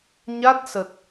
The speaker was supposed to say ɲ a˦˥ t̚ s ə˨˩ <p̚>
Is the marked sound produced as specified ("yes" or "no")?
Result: no